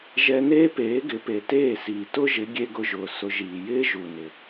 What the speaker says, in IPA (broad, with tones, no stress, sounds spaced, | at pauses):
ʒ ɛ˧ n eː˦ p eː˨˦ ɡ ɪ˨˦ p e˨ t eː˦˨ s iː˨ t ʊ˦ ʒ ɪ˨˦ ɡʲ e˦ ɡ ʊ˧ ʒ ʊː˨ s ʊ˧ ʒ iː˨ j ɪː˦ ʒ u˨ n ɪ˨